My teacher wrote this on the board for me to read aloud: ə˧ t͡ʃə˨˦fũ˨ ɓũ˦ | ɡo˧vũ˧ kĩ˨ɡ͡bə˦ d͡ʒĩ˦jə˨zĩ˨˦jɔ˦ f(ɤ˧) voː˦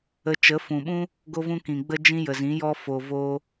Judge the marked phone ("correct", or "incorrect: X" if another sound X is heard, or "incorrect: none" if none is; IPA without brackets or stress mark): incorrect: o˧